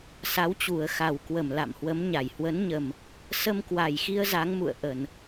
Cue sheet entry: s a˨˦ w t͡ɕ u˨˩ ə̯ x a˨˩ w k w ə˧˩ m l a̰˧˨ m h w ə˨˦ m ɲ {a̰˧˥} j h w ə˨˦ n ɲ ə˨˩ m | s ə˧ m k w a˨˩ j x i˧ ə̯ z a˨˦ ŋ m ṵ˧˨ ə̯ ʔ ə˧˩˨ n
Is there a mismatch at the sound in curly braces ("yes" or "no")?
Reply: yes